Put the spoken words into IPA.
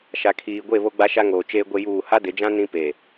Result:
ʃ a˨ kʰ iː˨ ɡʷ e˦˨ β o˦ ɡ͡b a˦ ʃ a˦ ŋ oː˨ t͡ʃ eː˦ ɡʷ e˦ j uː˦˨ h a˦ d ɪ˨˦ d͡ʒ ã˦ n ĩ˦ p e˨

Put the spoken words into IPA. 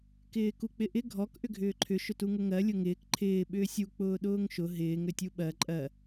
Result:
k ɪː k u k͡p ɪ ʔ ɪ ɡʱ ɔ k ʔ ʏ ɡʱ ʏː ǃʰ ʏ ʃ ʊ t u ŋ ʊ ŋ ɜ lʲ ʊ ŋ ɪː k ǃʰ ɪː ɓ ʏː sʲ u k͡p ʊː ɗ ʊː ŋ ʃ ʊ ɦ ɪː ŋ ɾ ʏ tʲ u ɓ ɜ ǃʼ ɜ

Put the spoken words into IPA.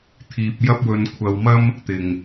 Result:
t̪ʰ iː˧ p̚ j ɐ˥ p̚ w ɵ˧ n kʷʰ ɐ˧ w m ɐ˥ m | t̪ ɪ˨ ŋ

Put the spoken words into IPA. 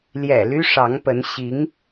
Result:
l j ɛ̰˨˩ l y˥ ʂ ɑ˧˥ ŋ p ə˧˥ n ɕ i˧˥ ŋ

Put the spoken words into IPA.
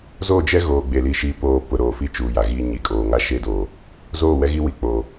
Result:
z o˦˨ d͡ʒ ɛ˦ ɣ oː˨ ɡ͡b e˨ l i˨ ʃ i˨ p oː˨ p ʊ˨ ɾ oː˨ f i˦ t͡ʃ uː˨ j a˨ ɣ i˨ ɲ i˨ kʼ oː˨ ŋ a˦ ʃ eː˦ d oː˨ | z oː˦˨ w ɛ˦ ɣ i˦ w i˨ k͡p o˨

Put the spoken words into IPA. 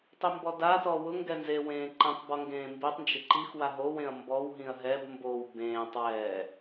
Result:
tˤ i m b ɔ d a t ɔ w ʊ ŋ ɡ ɛ n z e w ẽː ǃ ẽ tˤ b ɔ ŋ ɡ ẽː m b i tˤ n d͡ʒ ɪ ǃ i x w a ɦ o w ẽ ɐ̯ m b ɔ w ɦ ĩ ɐ̯ ɦ ɛ b m b o w b ẽː tˤ w ɛː

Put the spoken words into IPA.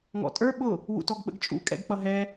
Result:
ŋ ɔ̰ tʼ ə˞ ɓ ʊ | w ṵ t ɔ ɡ ɓ ə̰ ɡ t͡ʃʼ ṵ kʼ ɛ̰ ɡ k͡p ʌ ɦ ɛ

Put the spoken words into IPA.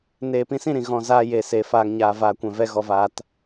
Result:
n eː˨ p ĩ˧ s ĩ˦˨ ɾ ĩ˨ ɣ ɔ̃˨ z aː˧ j e˨ s e˨ f aː˨ ŋ ɲ aː˨ v aː˨ kʷ ɛ̃˨ v ɛ˧ ɣ ɔ˧ v aː˧ t

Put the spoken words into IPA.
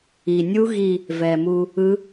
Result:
i˨˩ nʲ u˦˥ ɣ i˥˧ | v ɛ˨˩ m u˧ | ɯ˦˥

